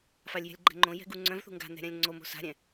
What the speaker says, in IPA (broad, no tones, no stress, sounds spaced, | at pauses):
f a lʲ j ɛ̤ lʲ ɡ͡ǃ ɛ̤ ŋ͡ǃ õ j ɛ̤ ɡ u ŋ͡ǀ œ̃ v θ ṳ ŋ ɡ a̤ n̪ ɛ̤ ɾʲ ã lʲ ŋ͡ǀ o m o̤ s a̤ ɾʲ ɛ̃